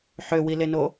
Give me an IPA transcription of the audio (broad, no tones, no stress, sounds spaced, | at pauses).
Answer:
ħ ø w i l e n o